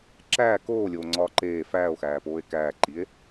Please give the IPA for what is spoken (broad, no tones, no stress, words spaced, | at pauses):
ǁæː koːlʲoːŋ͡ǀɒː ǃeː fæːo̯xæːpoːe̯ kæːǃie̯